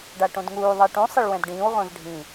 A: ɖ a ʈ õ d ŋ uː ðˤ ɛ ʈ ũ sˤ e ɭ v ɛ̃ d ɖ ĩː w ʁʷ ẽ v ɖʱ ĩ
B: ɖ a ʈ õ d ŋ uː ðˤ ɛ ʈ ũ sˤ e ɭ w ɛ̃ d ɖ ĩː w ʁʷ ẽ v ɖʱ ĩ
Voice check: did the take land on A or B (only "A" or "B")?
B